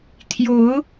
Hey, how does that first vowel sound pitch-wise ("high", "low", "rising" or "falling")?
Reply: rising